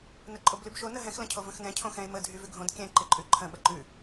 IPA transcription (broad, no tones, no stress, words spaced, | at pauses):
nəǃʼoblʉbʃo nəɦɛ̃x lə̃cʰovə̃xnɛ̃ cʰõxɛ̃e̯ mə dʱyvʉɡʱõd kʲɛ̃ ǃɪǃʼʉǃʰə̃ ɓəǃʉ